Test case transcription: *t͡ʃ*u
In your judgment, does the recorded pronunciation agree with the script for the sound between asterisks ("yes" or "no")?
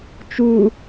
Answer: yes